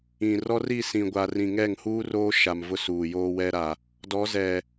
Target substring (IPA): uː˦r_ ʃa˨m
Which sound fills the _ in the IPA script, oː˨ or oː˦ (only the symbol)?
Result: oː˦